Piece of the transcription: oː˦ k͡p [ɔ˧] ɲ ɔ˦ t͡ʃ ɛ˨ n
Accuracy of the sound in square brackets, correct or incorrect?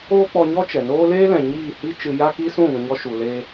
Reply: correct